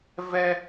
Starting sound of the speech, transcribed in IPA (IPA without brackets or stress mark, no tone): v